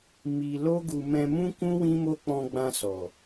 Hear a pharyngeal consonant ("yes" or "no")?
no